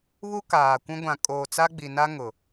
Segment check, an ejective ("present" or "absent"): present